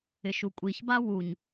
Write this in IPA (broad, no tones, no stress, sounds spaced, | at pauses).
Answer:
ɪ ʃ u kʷʼ i ç b a w u ɲ